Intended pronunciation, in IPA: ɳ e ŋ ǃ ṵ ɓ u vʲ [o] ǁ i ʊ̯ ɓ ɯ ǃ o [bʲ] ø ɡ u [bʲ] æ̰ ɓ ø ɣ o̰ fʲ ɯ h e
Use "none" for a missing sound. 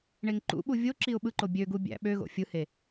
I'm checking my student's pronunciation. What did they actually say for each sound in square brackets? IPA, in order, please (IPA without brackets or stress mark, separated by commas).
o, bʲ, bʲ